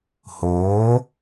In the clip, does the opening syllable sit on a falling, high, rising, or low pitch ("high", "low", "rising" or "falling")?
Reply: rising